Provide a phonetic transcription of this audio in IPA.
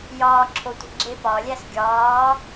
j ɒː ǁʰ o tʷ i̤ ɡ͡ǁ e p ɒ lʲ æ s ɡʲ ɒː

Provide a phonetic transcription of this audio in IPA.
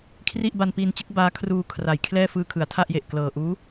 kʰ r i˥˩ ʔ b a˧ n p i˧ n t͡ɕ ɯ˦˥ k̚ b aː˦˥ kʰ r uː˧ kʰ r a˩˦ j kʰ l ɛː˥˩ f ɯː˧ kʰ ɯ˩˦ a̯ tʰ a˥˩ ʔ j e˨˩ ʔ k l ɤː˨˩ ʔ uː˦˥

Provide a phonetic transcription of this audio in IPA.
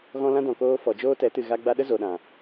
ɣ ɔ̃˦ l ã˦ d ɔ̃˨ k oː˧ f ɔ˨ d͡ʒ oː˦ t ɛ˨˦ t ɨ˨ ɣ a˧ ɡ͡b a˧ ɗ ə˦ z o˨ ɗ ã˨

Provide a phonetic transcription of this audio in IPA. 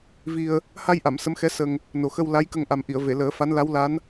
v i˧ ə̯ | h a˧ j ʔ a˨˩˨ m s ə˧˥ m x ɛ˧˥ s ə˧ ŋ | n o˨˩ x ə˧ w l a˧˥ j k ə˧ ŋ ʔ a˨˩ m ʔ i˨˩˨ ə̯ v e˨˩˨ l əː˨˩˦ f a˧˥ n l a˧˥ w l a˧˥ n

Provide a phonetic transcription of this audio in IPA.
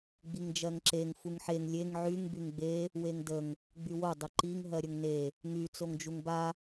ɡ͡b i ŋ d͡ʒ ɜ ŋ ǁ e ŋ f u ŋ ħ e ŋ lʲ e ŋ ʕ y ŋ b y ŋ ɡ͡b e | w e ŋ d ə ŋ | ɡ͡b y w o dˤ ə ǃ i ŋ ɦ ɜ ɾʲ ə ŋ n e | ŋ y t͡s o ŋ d͡ʒ u ŋ b a

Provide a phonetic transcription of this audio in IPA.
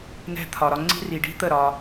n ɛ̤˧ t̪ʰ ɒ˨ ɾ ɒ˧ ŋ͡ǀ i̤˦ r i˨ ɖ i̤˦ t̪ ə˦˨ ɾ ɒː˧

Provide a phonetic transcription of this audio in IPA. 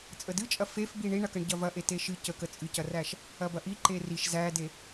t͡sʼ ə d ɨ t͡ʃʼ ɐ f e f b i ɳ i ɳ ɐ k ə ɳ ɟ ɐ v ɐ ʔ e t e ʃ ɨ c ə k ə t͡sʼ ɨ c ɐ r æ ʃ | ɐ b ɐ ʔ i ǃ e r i ʃ z æ d e

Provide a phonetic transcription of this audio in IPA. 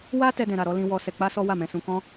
w a˦ t ɛ˦ d ɛ̃˧ ɾ a˧ ɾ ɔ˦ l ĩ˦ w ɔ˦ s ɛ˧ k͡p a˦ s ɔ˦ w a˦˨ m ɛ̃˧ s ũ˧ k ɔ̃˦

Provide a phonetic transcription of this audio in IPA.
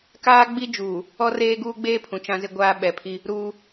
k aː˦ ɡ͡b i˦ d͡ʒ uː˨ | ɔ˦ r eː˦ ɡ uː˦ ɡ͡b eː˦ pʰ ũ˨ t͡ʃ ã˦ z ɪ˦ ɡʷ aː˦ ɓ ɛ˨ pʰ i˦ | ɾ uː˦

